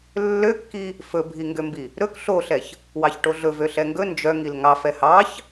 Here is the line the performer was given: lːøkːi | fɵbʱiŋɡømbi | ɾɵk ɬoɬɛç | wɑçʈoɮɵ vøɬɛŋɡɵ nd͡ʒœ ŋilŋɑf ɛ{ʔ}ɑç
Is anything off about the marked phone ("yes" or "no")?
yes